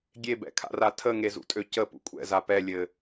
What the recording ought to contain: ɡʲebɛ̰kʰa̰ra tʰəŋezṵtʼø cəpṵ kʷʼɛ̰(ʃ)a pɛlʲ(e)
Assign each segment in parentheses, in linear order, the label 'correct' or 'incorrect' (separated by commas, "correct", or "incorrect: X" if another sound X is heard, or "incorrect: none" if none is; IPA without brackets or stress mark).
incorrect: z, incorrect: ɘ